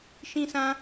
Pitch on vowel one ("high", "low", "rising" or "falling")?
high